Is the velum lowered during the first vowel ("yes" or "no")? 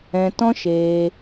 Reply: yes